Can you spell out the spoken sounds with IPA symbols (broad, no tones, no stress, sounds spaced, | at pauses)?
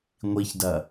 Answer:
ŋʷ i ç d ɐ